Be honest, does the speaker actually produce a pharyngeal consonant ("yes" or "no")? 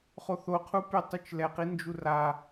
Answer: no